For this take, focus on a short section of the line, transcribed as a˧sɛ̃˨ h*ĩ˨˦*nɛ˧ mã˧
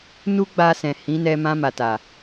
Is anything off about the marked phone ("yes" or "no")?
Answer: no